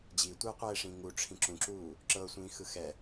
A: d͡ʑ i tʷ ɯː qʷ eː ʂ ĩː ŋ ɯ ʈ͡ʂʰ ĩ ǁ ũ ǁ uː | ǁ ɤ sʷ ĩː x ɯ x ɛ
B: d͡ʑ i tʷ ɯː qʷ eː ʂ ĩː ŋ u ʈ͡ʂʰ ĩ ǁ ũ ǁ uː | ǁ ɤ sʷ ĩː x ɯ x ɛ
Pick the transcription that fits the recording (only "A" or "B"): B